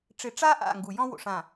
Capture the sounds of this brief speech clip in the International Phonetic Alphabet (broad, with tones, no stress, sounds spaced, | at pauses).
ʈ͡ʂ ɪ˨ ʈ͡ʂ a˦ ʔ a̰˦˨ ŋ ɡ u˨ j ɔ̃˦ w o̰˨ ʂ ã˨